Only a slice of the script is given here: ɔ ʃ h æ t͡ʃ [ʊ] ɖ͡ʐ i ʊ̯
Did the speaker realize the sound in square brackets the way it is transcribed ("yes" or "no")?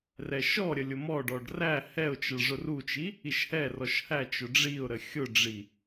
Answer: yes